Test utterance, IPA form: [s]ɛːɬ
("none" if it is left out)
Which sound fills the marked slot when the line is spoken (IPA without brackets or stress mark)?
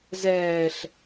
z